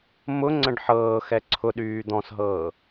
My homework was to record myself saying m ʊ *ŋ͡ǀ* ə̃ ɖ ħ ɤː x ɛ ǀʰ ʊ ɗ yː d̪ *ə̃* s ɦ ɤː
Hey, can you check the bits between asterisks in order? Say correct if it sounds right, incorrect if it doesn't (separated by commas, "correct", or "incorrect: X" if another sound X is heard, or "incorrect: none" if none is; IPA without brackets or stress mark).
correct, incorrect: ɔ̃